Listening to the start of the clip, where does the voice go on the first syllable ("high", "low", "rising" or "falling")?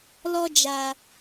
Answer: high